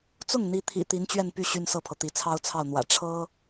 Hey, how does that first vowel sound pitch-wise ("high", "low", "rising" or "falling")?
falling